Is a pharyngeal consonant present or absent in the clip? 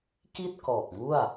absent